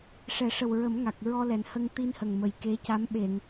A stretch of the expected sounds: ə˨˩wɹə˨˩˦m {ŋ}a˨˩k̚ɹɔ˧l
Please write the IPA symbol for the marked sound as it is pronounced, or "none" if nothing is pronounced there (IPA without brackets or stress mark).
ŋ